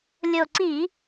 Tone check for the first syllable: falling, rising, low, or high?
low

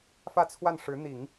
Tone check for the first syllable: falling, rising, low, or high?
falling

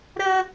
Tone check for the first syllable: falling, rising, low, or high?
high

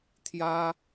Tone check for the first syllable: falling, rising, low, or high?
high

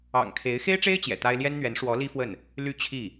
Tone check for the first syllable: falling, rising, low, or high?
low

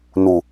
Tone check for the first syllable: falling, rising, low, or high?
low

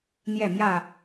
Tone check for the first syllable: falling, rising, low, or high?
falling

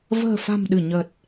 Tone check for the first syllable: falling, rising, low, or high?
low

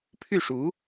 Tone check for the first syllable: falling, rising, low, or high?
falling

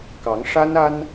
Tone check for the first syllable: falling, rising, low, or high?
rising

